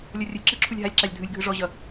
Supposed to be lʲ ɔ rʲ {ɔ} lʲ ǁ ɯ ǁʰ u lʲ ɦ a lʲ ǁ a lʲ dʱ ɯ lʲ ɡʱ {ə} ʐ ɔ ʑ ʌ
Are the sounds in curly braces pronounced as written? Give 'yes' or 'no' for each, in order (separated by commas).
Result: no, no